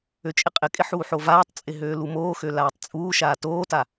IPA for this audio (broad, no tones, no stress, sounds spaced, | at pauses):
ø t͡ʃʼ ɪ qʼ ɪ kʼ ɪ ħ uː ħ o v aː tˤ t͡sʼ ɪ ɦ øː l u m oː x ø l aː tˤ t͡sʼ uː ʃ aː t oː t a